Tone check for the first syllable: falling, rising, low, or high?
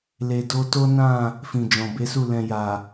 low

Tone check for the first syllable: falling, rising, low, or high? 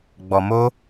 low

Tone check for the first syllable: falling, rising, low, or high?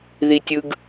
high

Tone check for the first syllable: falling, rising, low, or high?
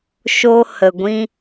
high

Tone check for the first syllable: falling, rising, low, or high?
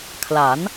rising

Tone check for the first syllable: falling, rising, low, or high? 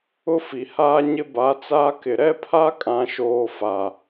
high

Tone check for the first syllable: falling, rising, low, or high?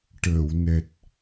low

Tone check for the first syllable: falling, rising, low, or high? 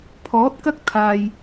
rising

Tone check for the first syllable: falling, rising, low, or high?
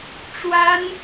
high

